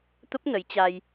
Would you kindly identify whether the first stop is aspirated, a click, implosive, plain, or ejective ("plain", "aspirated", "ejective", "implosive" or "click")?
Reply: plain